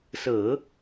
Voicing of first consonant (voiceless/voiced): voiceless